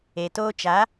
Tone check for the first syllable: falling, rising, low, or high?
low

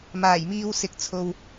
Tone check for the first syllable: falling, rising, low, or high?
low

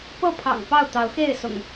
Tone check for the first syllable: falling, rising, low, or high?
falling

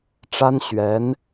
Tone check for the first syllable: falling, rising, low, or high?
high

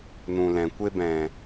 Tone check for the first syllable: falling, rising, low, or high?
low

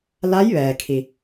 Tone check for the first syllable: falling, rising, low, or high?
rising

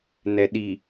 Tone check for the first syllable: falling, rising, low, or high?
low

